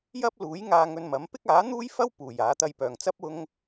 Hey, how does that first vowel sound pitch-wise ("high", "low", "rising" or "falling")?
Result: high